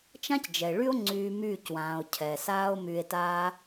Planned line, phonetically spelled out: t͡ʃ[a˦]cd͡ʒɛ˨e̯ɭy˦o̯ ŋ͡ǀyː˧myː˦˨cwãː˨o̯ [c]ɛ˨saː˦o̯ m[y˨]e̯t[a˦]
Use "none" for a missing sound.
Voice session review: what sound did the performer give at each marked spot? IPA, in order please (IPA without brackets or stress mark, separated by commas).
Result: ã˦, cʰ, y˧, a˦